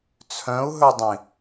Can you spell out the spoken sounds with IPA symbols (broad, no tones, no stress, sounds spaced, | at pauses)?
t͡sʰ œ̃ u̯ ɦ ɵ dˤ ĩ